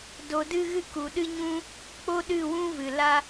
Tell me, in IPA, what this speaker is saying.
d o˨ d ɨ˧ ɣ ɨ˧ k u˨ ɗ ɨ˦ ɲ ũ˦ | k͡p o˦ ɗ ɨ˦˨ w ũ˦ v ɨ˨ l a˦

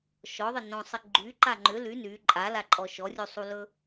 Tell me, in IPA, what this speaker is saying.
ʃ ɔ ðˤ ɪ n õ sˤ ɪ ɡ͡ǃ y ǃ a ŋ͡ǃ ʏ l y n y ǃʼ a l a ǃʼ ɔ ʃ ɔ rʲ u sˤ u l ɵ

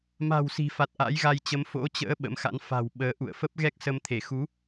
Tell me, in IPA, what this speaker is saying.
m a̤˨˩ w s i̤˨˩ f a˨˩ t̚ ʔ a̰˧˥ j ɣ a˧ j t͡ɕ ə˨˦ m f o̰˧˥ t͡ɕ ə̰ː˧˥ ɓ ə̰˧˥ m x a̰˧˥ n f a̤˨˩ w ɓ əː˨˦ ʔ ṵ˧˨ ə̯ f ə˦˥ p̚ ɣ ɛ˦˥ k̚ s ə˧ m t̪ʰ e˧˩ x u˨˦

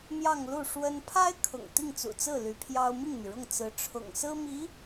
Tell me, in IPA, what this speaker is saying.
m j ɑ˥˧ ŋ l u˥˩ ʂ w ə˥ n pʰ a˥ ɪ̯ kʰ ʊ̰˨˩ ŋ t̪ i˥˩ ŋ t͡s ṵ˨˩ t͡s ɹ̩˥˩ l y˧˥ pʰ j ɑ˥ ʊ̯ m i˥˩ ŋ m y˩ ɻ ʊ˥˩ ŋ t͡s ɹ̩˧˥ ʈ͡ʂʰ ʊ̰˨˩ ŋ s ɹ̩˥ m i˧˥

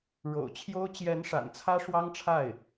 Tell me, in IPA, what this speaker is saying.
ɻ o̰˨˩ ʊ̯ t͡ɕʰ j o˥ ʊ̯ t͡ɕ j ɛ˧˥ n ʂ a̰˨˩ n t͡sʰ ä˥ ʂ w ɑ˥ ŋ ʈ͡ʂʰ a˥˩ ɪ̯

